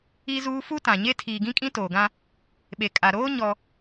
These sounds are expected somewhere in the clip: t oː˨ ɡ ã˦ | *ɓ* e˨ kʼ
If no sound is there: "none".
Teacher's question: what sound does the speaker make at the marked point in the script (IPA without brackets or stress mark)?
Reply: ɓ